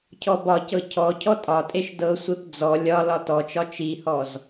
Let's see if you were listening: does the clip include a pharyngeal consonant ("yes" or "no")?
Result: no